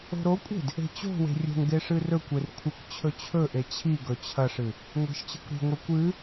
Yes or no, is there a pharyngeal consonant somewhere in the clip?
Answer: no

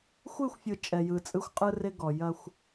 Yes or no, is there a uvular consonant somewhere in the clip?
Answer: yes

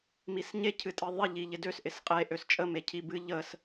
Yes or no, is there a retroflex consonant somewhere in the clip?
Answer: no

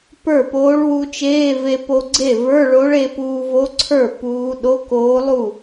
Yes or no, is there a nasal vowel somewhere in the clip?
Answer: no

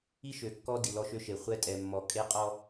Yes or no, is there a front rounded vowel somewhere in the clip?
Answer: yes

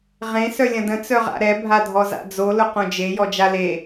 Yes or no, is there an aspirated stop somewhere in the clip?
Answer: no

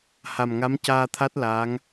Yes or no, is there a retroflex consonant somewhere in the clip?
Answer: no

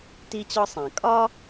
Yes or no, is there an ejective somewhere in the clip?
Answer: yes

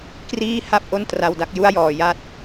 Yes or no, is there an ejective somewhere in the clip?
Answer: no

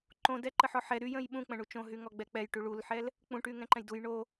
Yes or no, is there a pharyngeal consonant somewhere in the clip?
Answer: yes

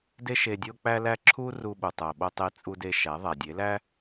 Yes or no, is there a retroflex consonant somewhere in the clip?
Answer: no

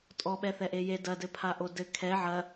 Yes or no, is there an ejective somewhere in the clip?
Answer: yes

